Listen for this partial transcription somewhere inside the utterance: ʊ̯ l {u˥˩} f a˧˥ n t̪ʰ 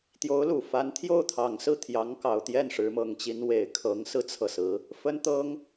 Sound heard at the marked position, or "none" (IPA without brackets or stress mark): u˨˩